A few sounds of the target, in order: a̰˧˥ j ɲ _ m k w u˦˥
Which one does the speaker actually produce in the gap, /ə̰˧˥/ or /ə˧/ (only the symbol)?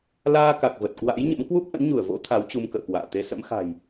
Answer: ə̰˧˥